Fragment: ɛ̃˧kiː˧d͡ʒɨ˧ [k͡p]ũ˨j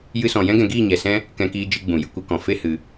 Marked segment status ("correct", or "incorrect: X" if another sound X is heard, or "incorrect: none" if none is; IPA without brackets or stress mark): incorrect: ɡ͡b